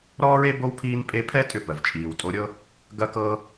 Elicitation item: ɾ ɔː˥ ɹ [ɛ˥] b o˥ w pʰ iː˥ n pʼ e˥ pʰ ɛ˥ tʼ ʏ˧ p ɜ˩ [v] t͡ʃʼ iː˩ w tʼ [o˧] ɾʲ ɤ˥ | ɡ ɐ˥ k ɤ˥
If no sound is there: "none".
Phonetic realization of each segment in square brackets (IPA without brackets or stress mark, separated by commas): e˥, v, o˧